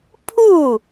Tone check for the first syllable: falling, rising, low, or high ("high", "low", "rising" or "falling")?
falling